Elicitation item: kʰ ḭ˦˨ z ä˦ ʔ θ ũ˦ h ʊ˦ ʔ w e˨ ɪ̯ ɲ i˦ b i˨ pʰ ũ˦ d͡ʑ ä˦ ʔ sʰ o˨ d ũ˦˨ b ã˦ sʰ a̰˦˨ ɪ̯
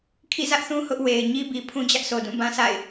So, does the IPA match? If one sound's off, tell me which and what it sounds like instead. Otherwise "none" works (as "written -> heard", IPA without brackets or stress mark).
none